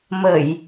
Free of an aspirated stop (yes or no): yes